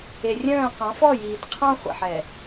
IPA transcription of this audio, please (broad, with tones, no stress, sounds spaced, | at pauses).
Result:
e˨ rʲ œ̃ː˦˨ q ɑ̃˨˦ f ɔ˦˨ j iː˨ d qʰ ɑ̃˦ χʷ ɛ̰˨ ħ ɛ˨